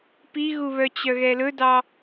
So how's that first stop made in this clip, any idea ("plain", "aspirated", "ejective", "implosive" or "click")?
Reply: plain